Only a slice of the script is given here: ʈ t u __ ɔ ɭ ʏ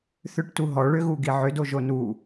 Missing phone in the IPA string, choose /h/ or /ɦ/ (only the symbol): ɦ